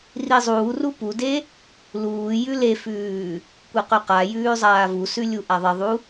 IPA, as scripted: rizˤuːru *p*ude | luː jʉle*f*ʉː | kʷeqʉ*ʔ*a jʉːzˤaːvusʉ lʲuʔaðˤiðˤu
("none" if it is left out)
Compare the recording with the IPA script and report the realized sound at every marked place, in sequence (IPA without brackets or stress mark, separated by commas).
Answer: p, f, q